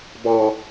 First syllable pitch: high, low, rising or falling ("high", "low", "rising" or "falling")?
high